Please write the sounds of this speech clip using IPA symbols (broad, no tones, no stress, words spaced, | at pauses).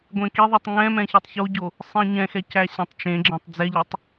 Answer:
ɡʷẽkiðˤitˤ ŋɛ̃ mɛ̃çitˤçoɟo | sˤĩɲɛ̃xɛ cæɕɛ̃tˤt͡ʃẽɡ͡ǁɛ̃tˤ d͡zɛʎɛtˤ